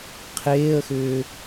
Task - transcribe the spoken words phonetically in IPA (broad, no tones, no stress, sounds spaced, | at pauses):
qʰ eː ə̯ x ʏː